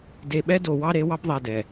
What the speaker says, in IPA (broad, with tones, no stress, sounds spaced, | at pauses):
d e˨ ɓ ɛ˦ d o˨ w ɑ˦ ɾ e˨˦ w ɑ˦ b ðˤ ɛ˨ d ɛ˨